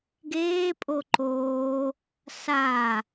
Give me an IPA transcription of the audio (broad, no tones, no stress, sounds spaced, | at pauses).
ɡ eː pʼ o ǃ oː | s a